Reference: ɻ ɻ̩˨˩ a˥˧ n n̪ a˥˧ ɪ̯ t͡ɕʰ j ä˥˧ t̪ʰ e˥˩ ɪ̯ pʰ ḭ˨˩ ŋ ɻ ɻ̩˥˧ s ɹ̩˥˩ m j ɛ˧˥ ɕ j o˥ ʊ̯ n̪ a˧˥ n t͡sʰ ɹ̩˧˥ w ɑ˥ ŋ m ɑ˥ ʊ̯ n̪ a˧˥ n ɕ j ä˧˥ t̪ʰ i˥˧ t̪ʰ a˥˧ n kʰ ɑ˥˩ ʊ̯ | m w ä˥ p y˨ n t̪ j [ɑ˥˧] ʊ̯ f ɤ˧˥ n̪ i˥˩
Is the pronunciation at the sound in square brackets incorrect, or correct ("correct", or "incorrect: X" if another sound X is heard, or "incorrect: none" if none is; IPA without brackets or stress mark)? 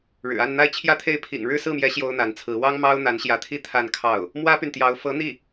incorrect: ɑ˧˥